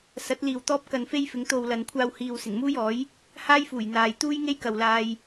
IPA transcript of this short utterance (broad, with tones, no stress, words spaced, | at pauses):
sɐ˨˥t̚liː˨w t̪ɔː˥p̚kɐ˧nfe˥jfɪ˨˧ŋ t̪o˨w lɐ˨nkʷʰaː˧whiː˨w sɪ˨˩ŋmuː˥jɔː˨˥j | haː˥jfuː˨˩jn̪aː˨jt̪uː˥j ŋe˥jkɐ˨wlaː˧j